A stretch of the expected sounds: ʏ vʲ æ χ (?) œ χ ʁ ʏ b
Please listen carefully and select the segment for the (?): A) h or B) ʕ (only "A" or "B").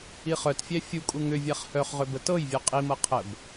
A